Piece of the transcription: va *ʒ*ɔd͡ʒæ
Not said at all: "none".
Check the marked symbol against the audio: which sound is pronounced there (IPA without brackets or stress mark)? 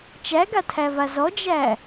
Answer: z